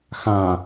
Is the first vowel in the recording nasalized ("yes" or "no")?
yes